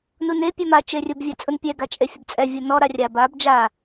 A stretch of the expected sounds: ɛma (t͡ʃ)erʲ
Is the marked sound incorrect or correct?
correct